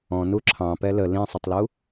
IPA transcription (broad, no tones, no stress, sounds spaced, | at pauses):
ɔ̃ n u ǁʰ ɑ̃ p ɛ l ə l ĩ sˤ ə tˤ l u